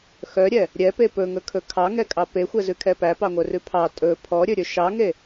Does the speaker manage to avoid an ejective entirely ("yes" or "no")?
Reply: no